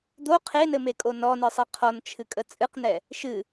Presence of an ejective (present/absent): present